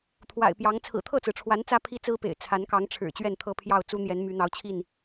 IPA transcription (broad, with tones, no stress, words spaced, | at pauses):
t̪ʰwa̰˨˩ɪ̯pjɑ˨˦ŋ t͡sʰɹ̩˨˩t̪ʰɤ˥˨t͡sɹ̩˩ʈ͡ʂʰwa˨˦n t͡sä˦pʰi˦t͡sɹ̩˦pḛ˨˩ɪ̯ t͡sʰa˨˦nkɑ˨˦ŋʈ͡ʂʰɻ̩˨˩ t͡ɕɥɛ˥˨nt̪ʰɤ˦pʰjɑ˥˨ʊ̯ t͡su˦n̪jɛ˨˦n my˨˦n̪ɑ˨˦ʊ̯t͡ɕʰi˥˨n